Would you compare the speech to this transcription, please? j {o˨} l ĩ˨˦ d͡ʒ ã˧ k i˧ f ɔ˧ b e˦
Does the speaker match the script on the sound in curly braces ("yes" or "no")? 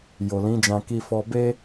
yes